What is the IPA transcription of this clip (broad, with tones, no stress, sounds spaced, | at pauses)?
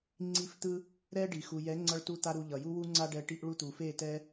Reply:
ŋ͡ǀ i˦˨ f t̪ ɯ˦ | ɾ ɛ˦ ɖ i˨ x u˨ j ɛ˨˦ ŋ͡ǀ ʌ˦ ɭ t u˦ t̪ a˦ ɾ u˧ ʎ ʌ˨ j u˦ w u˦ ŋ͡ǀ a˦ ɖ ɛ˧ ʈ i˧ ʔ ɭ u˧ t̪ u˨ f e˦˨ t ɛ˦